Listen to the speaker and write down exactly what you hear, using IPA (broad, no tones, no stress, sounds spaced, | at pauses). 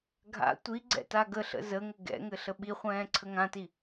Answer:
ɡʱ a̰ tʷ i ɡ͡ǀ ɛ̰ t a ɡ ə ɬ ə̰ z ə ŋ ɘ ɡ ɛ̰ ŋ ɘ ɬ ə ɓ i χʷ ɛ̃ː ǀʰ ə ŋ ã t i